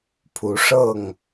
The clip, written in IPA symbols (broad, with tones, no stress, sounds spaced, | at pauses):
pʰ u˨˦ ʂ ɤ˥˨ ŋ